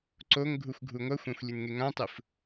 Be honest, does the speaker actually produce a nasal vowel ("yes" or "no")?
yes